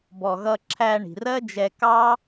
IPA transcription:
b ɔ˨ ɣ ʌ˧ ǁʰ æ˧ ɳ i̤˨ r ɜ˦ d͡ʒ ɛ˧ k ɑ˦

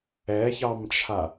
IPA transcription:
ɛ ç ɑ m t͡ʃʰ a

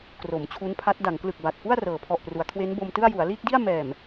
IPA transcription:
k r o˩˦ m t͡ɕʰ u˦˥ n pʰ a˦˥ t̚ d a˩˦ ŋ k l ɯ˨˩ k̚ b a˨˩ t̚ f u˥˩ a̯ r ɤː˩˦ pʰ ɔ˨˩ ʔ p r u˩˦ a̯ kʰ w e˦˥ n b o˧ m t ɯ˥˩ a̯ j u˩˦ a̯ l iː˥˩ k̚ d i˥˩ a̯ m ɛː˨˩ m

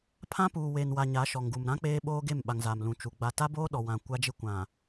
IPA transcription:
pʰ ã˦ p uː˨ w e˨ n w a˨ ɲ a˨˦ ʃ ɔ˨ ŋ ɡ u˨ m ɾ ã˦ k͡p eː˦ ɓ oː˦ ɡ e˦˨ m ɓ a˨ ŋ z a˨ m l ũ˨ t͡ʃ u˨ ɡ͡b a˨ t a˦ b oː˦ ɗ ɔ˨ w ã˨ kʷ a˦ d͡ʒ ɪ˦ kʷ ã˨

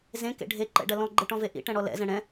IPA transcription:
z ẽ k ḛ ɖʱ e ǃ ɛ̰ ɖ ɐ l ɔ̃ ɡ͡ǃ e ʈ ɔ̃ v e ʔ ḭ ʈ ɛ̃ ɽ ɔ l ɛ̰ z ɛ̃ ɽ ɛ̃

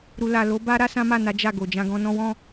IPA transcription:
ɾ u˨ l a˨ l o˨˦ b a˦ ɾ a˦ s ã˦ m a˦˨ n a˨˦ d͡ʒ a˦˨ ɡ o˨ d͡ʒ ã˧ ɡ ɔ̃˧ n ɔ̃˦ w ɔ̃˦˨

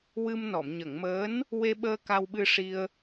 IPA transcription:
w ɨ˧ m n ɔ˨˩˨ m ɲ ə˨˩˨ ŋ m əː˧˥ n | w e˧ ɓ əː˧ k a˧ w ɓ ɨ˧ ʂ i˧ ə̯

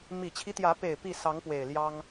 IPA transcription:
m i˨˩ t͡ɕʰ i˦ t̪ j ä˨˦ p e˨˩ ɪ̯ p i˥˨ s ɑ˨˦ ŋ p w e˨˩ ɪ̯ l j ɑ˦ ŋ

